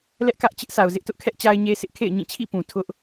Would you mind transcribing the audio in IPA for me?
l ɛ˦ ʔ k ä˦ ʔ t͡ɕ ɪ˦ ʔ sʰ a˨ ʊ̯ z ɪ˦ ʔ t ʊ˦ ʔ kʰ ɛ˦ ʔ t͡ɕ a˦ ɪ̯ ɲ e˦ sʰ ɪ˦ ʔ kʰ ḛ˦˨ ɪ̯ ɲ ĩ˦˨ t͡ɕʰ ḭ˦˨ p ũ˨ tʰ ʊ˦ ʔ

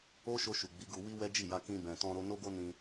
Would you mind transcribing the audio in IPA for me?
o˦ ʃ o˧ ʃ u˨ ɡ͡b i˨˦ ɡ u˧ w i˦ w ɛ˦ d͡ʒ i˦˨ j a˧ k ĩ˧ b ɛ̃˨ t ɔ̃˧ ɾ o˧ n o˦ ɡ o˦ n ĩ˧

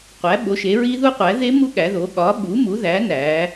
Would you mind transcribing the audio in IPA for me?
qʷ æ˩˥ ɓ o˩˥ ʃ e˩˥ ɹ i˦˥ ð u˦˥ qʷ æ˩˥ ð e˦˥ m u˦˥ ɠ æ˩˥ ð o˩˥ ɠ ɒ˩˥ ɓ u˩˥ m u˩˥ ð æ˩˥ n æ˩˥

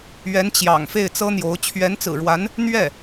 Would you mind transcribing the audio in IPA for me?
ɥ ɛ˧˥ n t͡ɕ j ɑ̰˨˩ ŋ f e˥˩ ɪ̯ t͡s ɤ˥ n̪ j o˧˥ ʊ̯ t͡ɕʰ ɥ ɛ˧˥ n t͡s ɹ̩˨˩ ɻ w a˧˥ n | n̪ ɥ ɛ˥˩

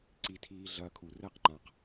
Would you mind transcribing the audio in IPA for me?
ǀ i tʰ iː ɮ ɐː kʰ u r ɘː q ŋ͡ǃ ã q

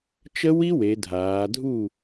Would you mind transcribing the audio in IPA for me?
t͡ʃ ə˦˥ w i˦˥ w e˩˧ dʱ aː˩˧ dʱ u˥˨

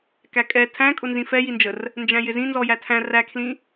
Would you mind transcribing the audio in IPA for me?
k æ kʼ ɛ tʰ æ̃ kʼ ʊ n z ĩ f ɛ j i n d͡ʒ ə r | n d͡ʒ æ̃ j ɪ z ĩ n z ɔ j æ tʰ æ̃ r æ kʰ l ĩ

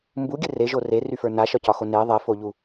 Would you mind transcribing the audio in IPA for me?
m b u ɡʲ ɘ r e ʒ o r e r y f ə˞ n a ʃ ɒ c ɒ x o n e ðˤ ɛ f o ʎ u

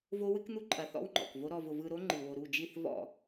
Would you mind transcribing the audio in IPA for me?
v o˦ w ɨ˦ k n̪ u˦ ǃʼ ɐ˨˦ θ ɔ̰˦ w ŋ͡ǃ ɔ̰˨ k v o˦ ɾ ɔ˧ v ʊ˧ v ɯ˧ ɾ o˦ ŋ͡ǃ ɨ˨ w o˨ ɾ u˦˨ d͡ʒ i˦˨ θ v ɔ̰˦˨

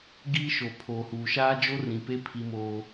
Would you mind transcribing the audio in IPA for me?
ɡ iː˦ ʃ o˨ pʰ oː˨ h uː˨ ʃ aː˦ d͡ʒ o˦ r ĩ˨ p e˦ pʰ i˦ m oː˦

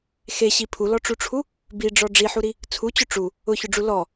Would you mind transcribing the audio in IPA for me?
x e ɕ i pʰ u l ɔ ʈ͡ʂ u ʈ͡ʂʰ u | b i ɖ͡ʐ ɔ ɖ͡ʐ i ħ u ɾ i | t͡sʰ u t͡ɕ ʊ ʈ͡ʂ u | ʊ ç ʊ ɖ͡ʐ u l ɔ

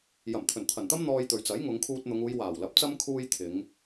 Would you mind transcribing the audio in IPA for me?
j ɐ˨˩ m t̪ʰ ɵ˨˩ n t̪ʰ ɐ˨˩ n t̪ ɐ˥ m n̪ ɔː˧ j t̪ ɵ˨ ɥ t͡s ɐ˨˥ j ŋ ʊ˨˧ ŋ kʰ uː˧ t̚ n̪ ʊ˨˧ ŋ uː˨˧ j w aː˨˩ w l ɐ˨˥ p̚ t͡s ɐ˥ m kʰ uː˥ j t̪ʰ ɪ˨˧ ŋ

